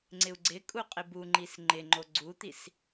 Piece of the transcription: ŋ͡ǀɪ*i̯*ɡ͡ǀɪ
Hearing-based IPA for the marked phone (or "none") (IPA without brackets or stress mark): u̯